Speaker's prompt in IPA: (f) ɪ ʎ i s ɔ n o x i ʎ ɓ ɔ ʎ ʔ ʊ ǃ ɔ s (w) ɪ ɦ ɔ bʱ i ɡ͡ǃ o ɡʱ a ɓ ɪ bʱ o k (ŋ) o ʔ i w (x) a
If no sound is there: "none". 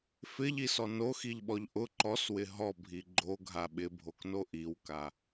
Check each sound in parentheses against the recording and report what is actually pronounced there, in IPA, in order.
f, w, n, k

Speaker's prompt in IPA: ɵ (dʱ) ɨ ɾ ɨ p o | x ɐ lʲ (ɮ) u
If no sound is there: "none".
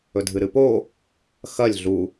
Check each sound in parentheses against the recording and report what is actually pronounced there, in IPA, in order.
dʱ, ɮ

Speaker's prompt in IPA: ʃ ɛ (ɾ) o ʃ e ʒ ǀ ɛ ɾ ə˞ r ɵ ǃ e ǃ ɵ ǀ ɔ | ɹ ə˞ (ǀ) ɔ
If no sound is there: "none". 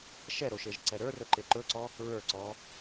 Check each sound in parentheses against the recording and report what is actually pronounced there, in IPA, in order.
ɾ, ǀ

